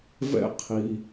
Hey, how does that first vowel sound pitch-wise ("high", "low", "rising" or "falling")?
high